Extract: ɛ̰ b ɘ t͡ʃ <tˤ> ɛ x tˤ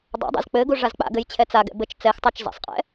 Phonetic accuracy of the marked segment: incorrect: t͡s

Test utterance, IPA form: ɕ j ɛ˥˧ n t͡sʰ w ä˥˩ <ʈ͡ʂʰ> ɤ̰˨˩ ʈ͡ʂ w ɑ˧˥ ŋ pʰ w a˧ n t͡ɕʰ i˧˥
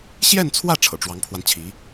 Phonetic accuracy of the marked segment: correct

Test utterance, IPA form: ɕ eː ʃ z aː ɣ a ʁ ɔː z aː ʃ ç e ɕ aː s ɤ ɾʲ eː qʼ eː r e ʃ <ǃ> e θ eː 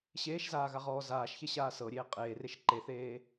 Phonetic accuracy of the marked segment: correct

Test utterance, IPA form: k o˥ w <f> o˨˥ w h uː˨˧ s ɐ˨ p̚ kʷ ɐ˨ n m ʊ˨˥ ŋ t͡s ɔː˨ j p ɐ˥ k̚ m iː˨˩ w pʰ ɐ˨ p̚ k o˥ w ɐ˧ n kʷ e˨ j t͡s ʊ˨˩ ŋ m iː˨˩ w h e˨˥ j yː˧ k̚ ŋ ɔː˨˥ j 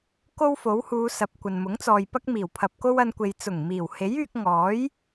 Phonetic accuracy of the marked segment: correct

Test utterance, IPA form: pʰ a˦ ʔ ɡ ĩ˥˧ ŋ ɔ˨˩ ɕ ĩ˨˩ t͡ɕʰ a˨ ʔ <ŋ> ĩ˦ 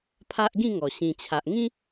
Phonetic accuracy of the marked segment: correct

